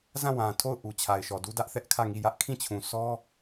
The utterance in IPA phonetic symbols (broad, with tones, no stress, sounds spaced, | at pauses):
z ã˦˨ w ã˨ tʰ o˦˨ ʊ̯ ʔ u˨ t͡ɕʰ a˨ ɪ̯ ʃ ɔ˨ d u˦ d ä˦ ʔ θ ɛ˦ ʔ kʰ ä˦˨ ŋ i˦˨ j ä˦ ʔ kʰ ĩ˦˨ t͡ɕʰ ũ˨ sʰ ɔ˦